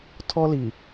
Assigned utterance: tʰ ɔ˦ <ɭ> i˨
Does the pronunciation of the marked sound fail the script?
yes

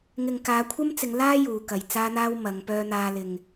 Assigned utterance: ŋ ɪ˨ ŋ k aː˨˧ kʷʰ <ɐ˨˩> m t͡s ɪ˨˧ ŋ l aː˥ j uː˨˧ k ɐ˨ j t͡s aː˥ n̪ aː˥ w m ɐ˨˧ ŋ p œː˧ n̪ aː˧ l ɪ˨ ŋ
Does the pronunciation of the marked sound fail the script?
yes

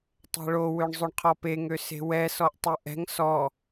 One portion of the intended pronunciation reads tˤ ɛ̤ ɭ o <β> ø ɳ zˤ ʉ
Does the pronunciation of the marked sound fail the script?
yes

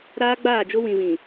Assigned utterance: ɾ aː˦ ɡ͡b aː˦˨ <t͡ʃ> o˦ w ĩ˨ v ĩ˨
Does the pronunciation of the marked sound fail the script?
yes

